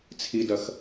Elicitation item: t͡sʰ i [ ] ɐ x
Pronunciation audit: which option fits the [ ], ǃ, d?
d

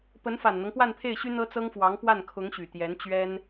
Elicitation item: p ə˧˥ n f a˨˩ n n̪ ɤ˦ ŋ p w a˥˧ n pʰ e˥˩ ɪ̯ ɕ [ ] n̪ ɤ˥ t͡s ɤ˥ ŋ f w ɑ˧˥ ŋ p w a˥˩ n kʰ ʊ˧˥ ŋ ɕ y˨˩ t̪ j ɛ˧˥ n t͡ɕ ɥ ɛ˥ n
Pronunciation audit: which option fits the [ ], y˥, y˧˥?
y˥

